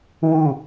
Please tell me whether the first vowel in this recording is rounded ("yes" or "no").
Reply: yes